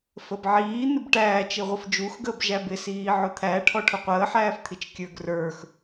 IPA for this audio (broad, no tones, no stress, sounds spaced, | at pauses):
f ə b ʕ iː n̪ ɪ b ʈ æː t͡ʃ i ʁʷ ə f d͡ʒ u x ɡ əː b ʒ æ b ɪ s iː ʕ ʊ t̪ʰ æ ʈʰ ɔ ʈʰ ʊ qʷ əː ħ æː f t̪ʰ i t͡ʃ kʲ ə˞ ɡ r ə˞ x